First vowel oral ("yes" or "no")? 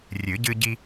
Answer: yes